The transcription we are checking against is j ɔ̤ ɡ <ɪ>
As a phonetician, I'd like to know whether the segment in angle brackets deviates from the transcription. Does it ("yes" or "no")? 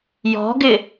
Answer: no